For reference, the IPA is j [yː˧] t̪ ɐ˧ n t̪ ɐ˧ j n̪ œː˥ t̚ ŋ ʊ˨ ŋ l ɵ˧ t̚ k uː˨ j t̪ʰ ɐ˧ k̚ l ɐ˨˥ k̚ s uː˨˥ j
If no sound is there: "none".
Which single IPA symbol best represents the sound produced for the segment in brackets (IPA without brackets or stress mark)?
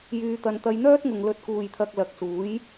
yː˧